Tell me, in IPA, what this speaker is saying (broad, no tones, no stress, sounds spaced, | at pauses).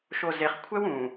ʃ o z e χ kʷʰ ɛ w ũː